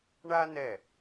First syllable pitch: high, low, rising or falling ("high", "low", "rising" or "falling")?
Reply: high